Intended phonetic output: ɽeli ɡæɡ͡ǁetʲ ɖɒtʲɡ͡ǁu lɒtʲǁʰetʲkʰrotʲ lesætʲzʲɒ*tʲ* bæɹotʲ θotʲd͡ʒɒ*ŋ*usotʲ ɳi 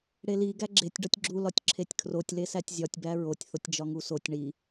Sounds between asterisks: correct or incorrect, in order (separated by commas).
correct, correct